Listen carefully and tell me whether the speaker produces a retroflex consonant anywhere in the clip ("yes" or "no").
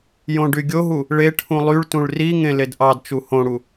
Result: yes